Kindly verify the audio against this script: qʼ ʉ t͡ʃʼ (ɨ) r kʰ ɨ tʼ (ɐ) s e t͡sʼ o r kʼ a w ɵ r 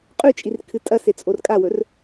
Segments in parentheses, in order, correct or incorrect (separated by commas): incorrect, correct